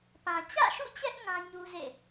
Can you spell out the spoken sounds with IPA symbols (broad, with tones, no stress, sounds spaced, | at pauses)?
p ã˨ t͡ɕ ä̰˦˨ ʃ ṵ˦˨ t͡ɕ ɛ˦ ʔ ŋ ã˦ ɲ u˦ z ḛ˦˨